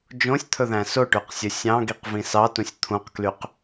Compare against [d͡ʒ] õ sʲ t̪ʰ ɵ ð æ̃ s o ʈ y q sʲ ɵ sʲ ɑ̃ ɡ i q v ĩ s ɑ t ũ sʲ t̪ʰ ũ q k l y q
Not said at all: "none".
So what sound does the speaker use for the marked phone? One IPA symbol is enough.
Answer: d͡ʒ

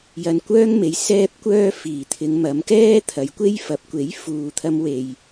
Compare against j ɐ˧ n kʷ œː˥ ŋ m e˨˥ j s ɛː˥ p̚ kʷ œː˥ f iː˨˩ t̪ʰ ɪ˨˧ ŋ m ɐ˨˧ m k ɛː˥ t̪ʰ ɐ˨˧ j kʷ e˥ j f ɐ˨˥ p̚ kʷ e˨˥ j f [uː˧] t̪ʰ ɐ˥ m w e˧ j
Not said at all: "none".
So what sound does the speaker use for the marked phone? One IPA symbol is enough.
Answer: uː˨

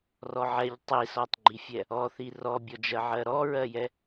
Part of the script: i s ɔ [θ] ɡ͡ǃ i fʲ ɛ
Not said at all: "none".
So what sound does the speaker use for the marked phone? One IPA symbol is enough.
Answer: tˤ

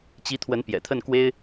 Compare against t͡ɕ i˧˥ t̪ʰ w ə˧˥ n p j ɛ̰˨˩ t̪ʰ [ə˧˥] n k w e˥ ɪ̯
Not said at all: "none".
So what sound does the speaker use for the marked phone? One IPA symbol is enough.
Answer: ə˥˩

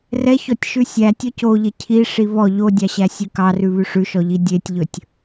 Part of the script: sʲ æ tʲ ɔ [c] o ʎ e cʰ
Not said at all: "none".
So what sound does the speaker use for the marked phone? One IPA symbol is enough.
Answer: c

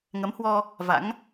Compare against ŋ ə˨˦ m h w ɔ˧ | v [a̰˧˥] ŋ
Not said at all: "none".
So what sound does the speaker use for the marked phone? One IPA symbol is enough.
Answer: a̰˧˥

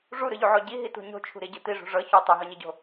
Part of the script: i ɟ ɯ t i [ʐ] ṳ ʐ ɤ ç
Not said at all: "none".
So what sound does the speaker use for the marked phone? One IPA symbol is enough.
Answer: ʐ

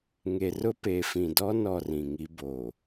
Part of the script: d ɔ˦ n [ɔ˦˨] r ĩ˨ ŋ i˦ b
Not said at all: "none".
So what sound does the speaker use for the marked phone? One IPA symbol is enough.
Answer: ɔ˦˨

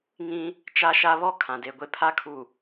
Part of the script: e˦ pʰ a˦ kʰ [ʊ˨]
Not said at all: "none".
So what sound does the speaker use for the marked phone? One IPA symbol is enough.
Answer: u˨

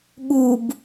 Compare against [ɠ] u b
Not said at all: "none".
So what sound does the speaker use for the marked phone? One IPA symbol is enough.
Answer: ɠ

